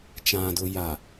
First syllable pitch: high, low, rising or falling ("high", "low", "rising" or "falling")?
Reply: low